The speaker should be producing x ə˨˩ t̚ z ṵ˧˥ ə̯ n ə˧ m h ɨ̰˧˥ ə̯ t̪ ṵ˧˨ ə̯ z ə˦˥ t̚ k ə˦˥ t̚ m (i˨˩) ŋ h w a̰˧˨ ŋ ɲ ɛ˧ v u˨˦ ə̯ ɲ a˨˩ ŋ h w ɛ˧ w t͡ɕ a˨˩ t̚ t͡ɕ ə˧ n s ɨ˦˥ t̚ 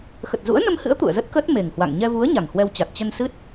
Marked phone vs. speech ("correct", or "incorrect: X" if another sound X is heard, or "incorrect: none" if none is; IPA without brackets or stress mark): incorrect: e˨˩